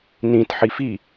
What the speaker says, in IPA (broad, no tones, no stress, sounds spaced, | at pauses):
n ĩ t ħ i f i